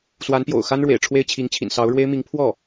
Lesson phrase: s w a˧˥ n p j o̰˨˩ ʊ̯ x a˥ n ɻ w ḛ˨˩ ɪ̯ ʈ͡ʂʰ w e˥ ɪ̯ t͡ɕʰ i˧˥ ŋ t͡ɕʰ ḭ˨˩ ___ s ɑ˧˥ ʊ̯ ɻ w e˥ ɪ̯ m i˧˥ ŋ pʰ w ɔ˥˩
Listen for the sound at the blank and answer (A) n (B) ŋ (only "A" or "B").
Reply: A